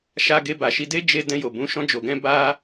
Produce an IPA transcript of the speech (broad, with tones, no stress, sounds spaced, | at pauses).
ʃ a˧ ɡ e˧ b a˨ ʃ i˧ d e˦ d͡ʒ e˧ d ɛ̃˧ j o˨ b ũ˨˦ ʃ ɔ̃˧ d͡ʒ o˨ ɡ ɛ̃˧ b a˦